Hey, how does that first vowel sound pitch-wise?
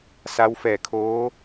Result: rising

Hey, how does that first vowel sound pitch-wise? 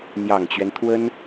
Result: low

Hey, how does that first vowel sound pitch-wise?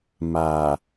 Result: low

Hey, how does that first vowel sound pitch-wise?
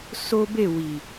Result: high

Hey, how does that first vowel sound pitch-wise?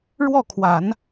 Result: falling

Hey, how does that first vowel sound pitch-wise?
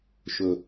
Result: low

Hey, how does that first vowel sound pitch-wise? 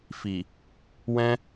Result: low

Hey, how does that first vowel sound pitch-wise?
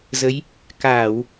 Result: rising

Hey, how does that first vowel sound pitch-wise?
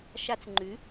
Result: high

